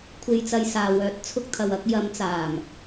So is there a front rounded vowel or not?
yes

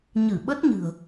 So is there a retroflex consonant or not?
no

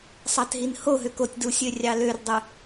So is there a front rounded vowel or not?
yes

